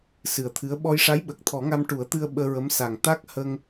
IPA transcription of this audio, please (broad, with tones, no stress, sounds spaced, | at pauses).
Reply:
s ɨ˨˩ ə̯ t̪ʰ ɨ˧˥ ə̯ ɓ ɔ˧ j ʂ a˧˥ j ɓ ə˨˩ k̚ t̪ʰ ɔ˨˩˦ ŋ a˧ m ʈ u˨˩˦ ə̯ t̪ ɨ˧ ə̯ ɓ əː˧ ɹ ə˧˥ m s a˨˩ ŋ t̪ a˦˥ k̚ h ə˧ ŋ